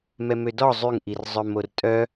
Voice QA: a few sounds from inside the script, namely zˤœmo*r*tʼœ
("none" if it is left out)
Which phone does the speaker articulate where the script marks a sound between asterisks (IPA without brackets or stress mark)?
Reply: r